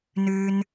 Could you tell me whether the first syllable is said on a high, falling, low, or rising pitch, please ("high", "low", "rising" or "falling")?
high